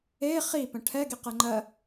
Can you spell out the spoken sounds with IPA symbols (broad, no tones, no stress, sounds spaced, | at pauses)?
e χ i p ə̃ ʈʰ ɛ ɡ i q ɛ ŋ͡ǃ ɜ